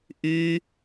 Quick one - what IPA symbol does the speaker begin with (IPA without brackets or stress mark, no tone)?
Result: ʔ